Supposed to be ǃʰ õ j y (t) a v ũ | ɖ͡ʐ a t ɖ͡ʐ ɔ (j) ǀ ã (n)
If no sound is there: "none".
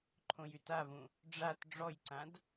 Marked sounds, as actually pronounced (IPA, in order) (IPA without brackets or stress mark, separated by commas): t, j, d